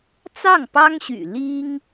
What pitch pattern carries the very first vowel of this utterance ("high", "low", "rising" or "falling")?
falling